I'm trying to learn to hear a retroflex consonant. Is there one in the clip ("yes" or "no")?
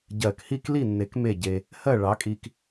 yes